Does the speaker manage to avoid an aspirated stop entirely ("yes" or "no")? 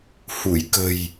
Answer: yes